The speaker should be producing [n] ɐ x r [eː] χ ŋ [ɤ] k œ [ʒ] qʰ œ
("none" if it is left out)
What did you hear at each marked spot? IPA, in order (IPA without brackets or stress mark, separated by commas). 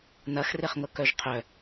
n, e, ɤ, ʒ